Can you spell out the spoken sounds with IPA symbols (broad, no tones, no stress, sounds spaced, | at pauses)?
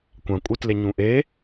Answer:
kʷ ã kʷʼ ɯ t l e ɲ ũ ʔ e